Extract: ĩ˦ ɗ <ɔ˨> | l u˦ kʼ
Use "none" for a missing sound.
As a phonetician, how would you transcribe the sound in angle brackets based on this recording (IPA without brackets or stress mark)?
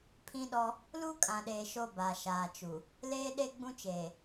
ɔ˦